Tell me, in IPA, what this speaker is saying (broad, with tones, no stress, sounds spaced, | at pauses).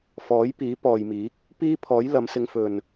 f ɔː˨˥ j p iː˨˥ p ɔː˨ j m iː˨˥ k̚ | p iː˥ pʰ ɔː˨˥ j l ɐ˨˧ m s ɪ˧ ŋ f ɵ˨ n